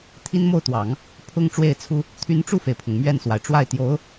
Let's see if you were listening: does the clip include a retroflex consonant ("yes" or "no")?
yes